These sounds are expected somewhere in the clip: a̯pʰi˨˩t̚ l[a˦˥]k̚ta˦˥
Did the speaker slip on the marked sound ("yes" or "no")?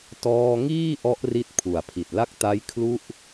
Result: yes